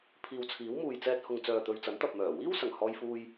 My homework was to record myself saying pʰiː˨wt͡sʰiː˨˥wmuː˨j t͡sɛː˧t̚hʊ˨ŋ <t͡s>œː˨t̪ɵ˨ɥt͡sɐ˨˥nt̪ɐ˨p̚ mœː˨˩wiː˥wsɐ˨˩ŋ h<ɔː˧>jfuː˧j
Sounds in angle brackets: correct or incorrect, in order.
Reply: correct, correct

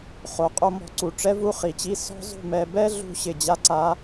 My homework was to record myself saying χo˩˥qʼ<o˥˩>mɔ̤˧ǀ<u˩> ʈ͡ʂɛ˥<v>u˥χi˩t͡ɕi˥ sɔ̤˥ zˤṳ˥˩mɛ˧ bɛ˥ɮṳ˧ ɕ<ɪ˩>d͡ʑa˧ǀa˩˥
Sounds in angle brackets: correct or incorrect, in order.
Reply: incorrect: o˧, correct, correct, correct

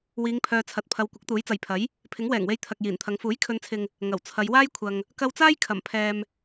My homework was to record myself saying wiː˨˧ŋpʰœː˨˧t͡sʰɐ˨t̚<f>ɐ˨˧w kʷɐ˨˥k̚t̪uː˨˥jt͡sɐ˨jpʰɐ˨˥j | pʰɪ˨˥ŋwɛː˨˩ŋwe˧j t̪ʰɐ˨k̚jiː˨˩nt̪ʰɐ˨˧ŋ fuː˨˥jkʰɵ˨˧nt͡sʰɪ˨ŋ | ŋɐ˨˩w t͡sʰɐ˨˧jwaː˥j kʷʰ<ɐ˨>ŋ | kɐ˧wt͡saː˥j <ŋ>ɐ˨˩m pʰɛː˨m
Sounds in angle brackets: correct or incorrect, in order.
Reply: incorrect: pʰ, correct, incorrect: kʰ

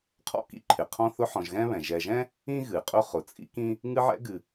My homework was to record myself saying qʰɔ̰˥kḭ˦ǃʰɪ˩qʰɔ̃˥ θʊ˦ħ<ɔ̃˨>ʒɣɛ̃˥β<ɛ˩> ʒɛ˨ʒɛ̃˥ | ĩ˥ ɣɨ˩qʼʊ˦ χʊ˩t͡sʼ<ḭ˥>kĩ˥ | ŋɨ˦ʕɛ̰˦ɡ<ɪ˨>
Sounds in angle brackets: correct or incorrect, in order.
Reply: correct, incorrect: ɛ̃˩, correct, incorrect: ɨ˨

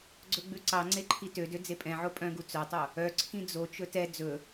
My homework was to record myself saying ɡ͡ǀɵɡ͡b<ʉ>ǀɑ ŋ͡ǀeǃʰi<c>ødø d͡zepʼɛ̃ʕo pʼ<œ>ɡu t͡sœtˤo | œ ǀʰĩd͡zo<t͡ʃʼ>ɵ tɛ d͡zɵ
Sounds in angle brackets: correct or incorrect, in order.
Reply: correct, incorrect: t, incorrect: œ̃, incorrect: t͡ʃ

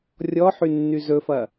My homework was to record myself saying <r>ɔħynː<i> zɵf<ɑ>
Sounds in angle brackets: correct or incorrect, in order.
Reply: incorrect: rʲ, incorrect: y, incorrect: ɐ

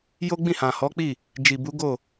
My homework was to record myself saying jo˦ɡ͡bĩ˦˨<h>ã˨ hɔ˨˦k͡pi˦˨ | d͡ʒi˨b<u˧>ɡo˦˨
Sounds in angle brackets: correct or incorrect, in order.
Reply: correct, incorrect: u˨˦

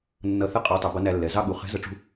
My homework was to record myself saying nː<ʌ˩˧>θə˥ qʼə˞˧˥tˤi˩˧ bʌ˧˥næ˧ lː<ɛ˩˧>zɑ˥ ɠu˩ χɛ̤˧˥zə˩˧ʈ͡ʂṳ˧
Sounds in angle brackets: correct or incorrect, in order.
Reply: incorrect: ʌ˧˥, correct

